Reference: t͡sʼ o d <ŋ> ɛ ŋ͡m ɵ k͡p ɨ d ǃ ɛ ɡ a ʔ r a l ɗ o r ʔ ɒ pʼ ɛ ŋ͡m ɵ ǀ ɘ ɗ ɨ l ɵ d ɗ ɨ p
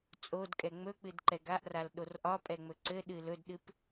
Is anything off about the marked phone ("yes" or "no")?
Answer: yes